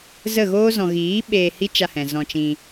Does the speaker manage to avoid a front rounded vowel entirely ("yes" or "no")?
yes